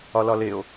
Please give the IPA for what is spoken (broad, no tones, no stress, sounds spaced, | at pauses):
ɒ l ɒ l e o̯